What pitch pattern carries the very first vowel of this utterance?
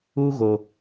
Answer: high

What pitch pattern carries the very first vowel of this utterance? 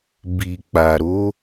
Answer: low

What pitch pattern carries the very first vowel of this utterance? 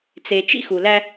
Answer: low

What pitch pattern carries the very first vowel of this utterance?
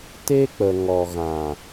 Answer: high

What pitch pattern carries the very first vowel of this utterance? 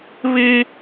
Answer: high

